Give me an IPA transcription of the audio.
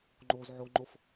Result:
ŋ͡ǃ o z ʕ o ŋ͡ǃ o f

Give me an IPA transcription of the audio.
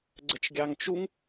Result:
ɡ͡ǀ ə t͡ʃ ɡʲ ɑ ŋ t͡ʃ u ŋ

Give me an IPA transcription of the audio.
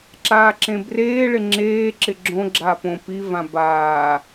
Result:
ǁ aː ǁ ẽ b r eː ɭ ɪ ŋ͡ǁ eː ǁ ɪ ɡ͡ǁ õ ɡ͡ǁ a p õ p i v ã b aː

